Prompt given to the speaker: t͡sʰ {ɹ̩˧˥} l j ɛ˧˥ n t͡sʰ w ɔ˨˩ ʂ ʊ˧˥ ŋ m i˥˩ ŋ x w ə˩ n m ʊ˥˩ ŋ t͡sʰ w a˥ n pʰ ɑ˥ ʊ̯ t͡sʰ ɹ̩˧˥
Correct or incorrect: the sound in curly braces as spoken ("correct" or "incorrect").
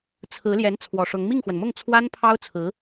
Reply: correct